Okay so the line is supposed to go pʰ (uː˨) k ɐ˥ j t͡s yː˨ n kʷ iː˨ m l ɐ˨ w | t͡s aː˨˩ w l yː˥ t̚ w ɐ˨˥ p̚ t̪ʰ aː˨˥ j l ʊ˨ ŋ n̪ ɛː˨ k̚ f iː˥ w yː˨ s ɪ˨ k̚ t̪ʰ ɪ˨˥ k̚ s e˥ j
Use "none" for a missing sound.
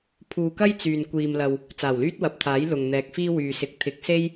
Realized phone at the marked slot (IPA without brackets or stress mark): uː˨